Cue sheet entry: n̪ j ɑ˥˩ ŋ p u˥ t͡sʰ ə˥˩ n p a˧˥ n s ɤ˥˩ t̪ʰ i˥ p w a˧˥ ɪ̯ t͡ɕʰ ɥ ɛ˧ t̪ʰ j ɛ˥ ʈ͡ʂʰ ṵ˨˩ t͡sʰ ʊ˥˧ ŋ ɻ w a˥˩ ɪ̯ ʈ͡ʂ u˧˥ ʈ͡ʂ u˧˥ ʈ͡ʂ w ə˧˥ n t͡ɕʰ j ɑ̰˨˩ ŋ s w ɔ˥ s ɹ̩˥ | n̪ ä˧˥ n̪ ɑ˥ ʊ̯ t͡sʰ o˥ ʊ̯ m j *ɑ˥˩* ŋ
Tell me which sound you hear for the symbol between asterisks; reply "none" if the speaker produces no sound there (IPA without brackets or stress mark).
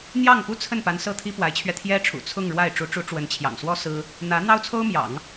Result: ɑ̰˨˩˦